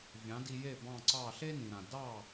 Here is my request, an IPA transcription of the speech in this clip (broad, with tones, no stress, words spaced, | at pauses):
vʲɑ̃˩˥di˧je˥˩ bɑ̃˥˩ǀɑ˥˩ ɬe˥nĩ˩ɾã˩ dɑ˥˩